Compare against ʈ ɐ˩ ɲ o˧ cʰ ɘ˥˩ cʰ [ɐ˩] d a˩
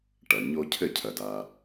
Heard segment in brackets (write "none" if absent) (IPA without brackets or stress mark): ɐ˩